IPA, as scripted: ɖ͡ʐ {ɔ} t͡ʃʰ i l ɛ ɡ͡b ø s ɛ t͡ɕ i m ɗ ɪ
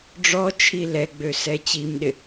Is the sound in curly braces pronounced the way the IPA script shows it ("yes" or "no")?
yes